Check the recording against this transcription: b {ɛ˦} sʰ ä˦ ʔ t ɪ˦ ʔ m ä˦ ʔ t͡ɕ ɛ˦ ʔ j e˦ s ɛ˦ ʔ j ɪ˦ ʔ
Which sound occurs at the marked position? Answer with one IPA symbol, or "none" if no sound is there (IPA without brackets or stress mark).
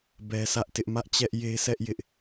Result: ɛ˦